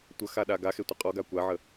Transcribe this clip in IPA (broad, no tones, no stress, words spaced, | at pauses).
tʷəxaɗa ɡaxetʷə qʼɔɡa kʷaʕə